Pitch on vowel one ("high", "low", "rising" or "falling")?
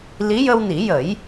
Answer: rising